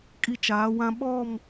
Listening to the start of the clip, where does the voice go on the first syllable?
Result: high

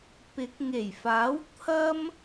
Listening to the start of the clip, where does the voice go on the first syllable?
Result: rising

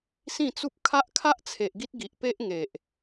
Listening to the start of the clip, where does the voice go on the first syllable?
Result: falling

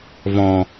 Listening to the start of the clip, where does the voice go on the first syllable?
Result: low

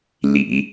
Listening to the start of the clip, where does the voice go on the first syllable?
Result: low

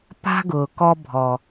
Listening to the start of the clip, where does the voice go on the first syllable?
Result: high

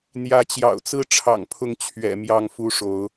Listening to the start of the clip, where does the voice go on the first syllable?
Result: rising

